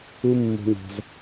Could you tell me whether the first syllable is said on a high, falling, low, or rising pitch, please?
high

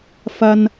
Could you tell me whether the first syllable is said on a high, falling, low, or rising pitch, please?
low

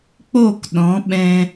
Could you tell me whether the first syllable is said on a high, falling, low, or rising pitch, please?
falling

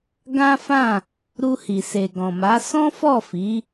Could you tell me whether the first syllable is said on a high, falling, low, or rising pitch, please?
high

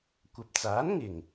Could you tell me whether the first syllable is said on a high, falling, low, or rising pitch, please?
low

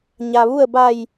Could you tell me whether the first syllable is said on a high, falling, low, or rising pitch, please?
low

